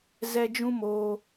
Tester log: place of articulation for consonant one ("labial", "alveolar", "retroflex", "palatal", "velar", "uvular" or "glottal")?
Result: alveolar